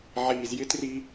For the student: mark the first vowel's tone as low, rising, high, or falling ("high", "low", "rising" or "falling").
low